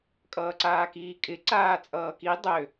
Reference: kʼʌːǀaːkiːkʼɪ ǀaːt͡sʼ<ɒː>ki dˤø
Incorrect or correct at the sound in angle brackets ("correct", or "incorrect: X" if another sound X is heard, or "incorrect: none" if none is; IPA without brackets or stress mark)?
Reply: incorrect: ʌː